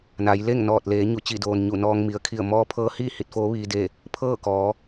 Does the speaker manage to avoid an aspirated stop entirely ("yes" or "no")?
no